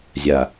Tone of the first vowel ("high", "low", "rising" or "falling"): low